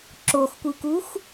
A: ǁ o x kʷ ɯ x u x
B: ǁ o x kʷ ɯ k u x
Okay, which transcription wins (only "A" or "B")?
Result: B